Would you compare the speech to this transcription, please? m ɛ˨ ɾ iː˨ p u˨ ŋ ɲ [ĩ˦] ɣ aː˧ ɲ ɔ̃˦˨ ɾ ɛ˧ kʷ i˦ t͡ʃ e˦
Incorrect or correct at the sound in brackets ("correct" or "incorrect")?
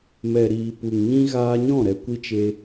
correct